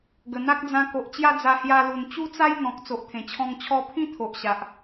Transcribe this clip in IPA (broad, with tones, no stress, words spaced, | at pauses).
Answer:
ɡə˨˩n̪a˦k̚d͡zã˧ ko˨ʔt͡ɕja˥˧d͡za˧ hja˧lu˨˩n t͡ɕu˦t͡sa˦j n̪ɔ̃˨k̚ t͡so˨ʔt̪ʰẽ˨˩t͡ɕʰɔ̃˧ŋ t͡ɕʰɔ˧pʰĩ˦ t̪ʰo˨ʔɕa˨ʔ